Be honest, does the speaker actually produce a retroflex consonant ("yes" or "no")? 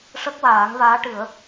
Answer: yes